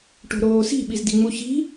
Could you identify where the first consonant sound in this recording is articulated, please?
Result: retroflex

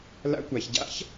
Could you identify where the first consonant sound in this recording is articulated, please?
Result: alveolar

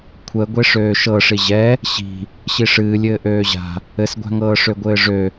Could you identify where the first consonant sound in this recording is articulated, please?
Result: velar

